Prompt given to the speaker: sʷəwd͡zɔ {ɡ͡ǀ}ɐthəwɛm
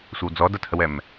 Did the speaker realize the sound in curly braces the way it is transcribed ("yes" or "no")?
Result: no